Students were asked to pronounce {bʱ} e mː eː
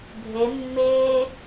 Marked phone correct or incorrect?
correct